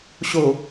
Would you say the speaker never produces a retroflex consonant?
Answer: yes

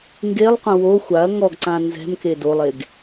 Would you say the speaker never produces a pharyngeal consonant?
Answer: yes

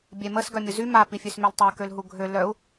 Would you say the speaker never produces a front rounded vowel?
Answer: no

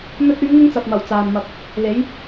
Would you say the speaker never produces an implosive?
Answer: yes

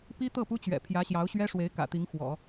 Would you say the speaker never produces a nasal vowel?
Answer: yes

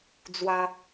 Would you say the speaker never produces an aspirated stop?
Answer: yes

